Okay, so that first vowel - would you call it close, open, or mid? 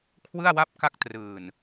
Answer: close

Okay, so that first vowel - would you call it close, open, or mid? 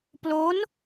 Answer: mid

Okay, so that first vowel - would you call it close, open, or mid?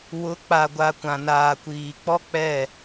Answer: close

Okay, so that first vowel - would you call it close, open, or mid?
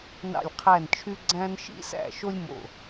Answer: open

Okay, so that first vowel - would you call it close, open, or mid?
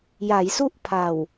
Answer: open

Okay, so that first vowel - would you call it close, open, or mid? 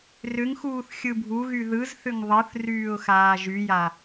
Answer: close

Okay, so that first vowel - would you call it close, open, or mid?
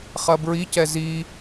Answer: open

